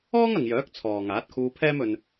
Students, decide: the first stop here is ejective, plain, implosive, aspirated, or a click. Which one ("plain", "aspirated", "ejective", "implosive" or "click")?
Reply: plain